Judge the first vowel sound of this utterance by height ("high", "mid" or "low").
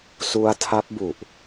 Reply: high